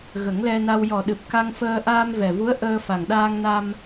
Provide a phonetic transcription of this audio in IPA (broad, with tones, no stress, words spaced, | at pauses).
ɣə˨˩˦ŋlɛ˧na˧w jɔ˨˩ɗɨ˨˩p̚ka˧ŋfəː˧ ʔaː˧mvɛ˨˩vu˧˥ə̯ ʔəː˧ fa˨˩ŋɗaː˧ŋna˧m